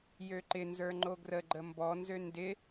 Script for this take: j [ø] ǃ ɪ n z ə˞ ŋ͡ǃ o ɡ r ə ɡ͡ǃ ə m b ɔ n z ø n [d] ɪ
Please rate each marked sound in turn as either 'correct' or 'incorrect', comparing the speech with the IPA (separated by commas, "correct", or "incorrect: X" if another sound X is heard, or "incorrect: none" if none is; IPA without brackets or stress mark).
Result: correct, correct